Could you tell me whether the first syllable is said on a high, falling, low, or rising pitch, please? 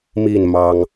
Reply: falling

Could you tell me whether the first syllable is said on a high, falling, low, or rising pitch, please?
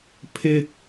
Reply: high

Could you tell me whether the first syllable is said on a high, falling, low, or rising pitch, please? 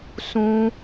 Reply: high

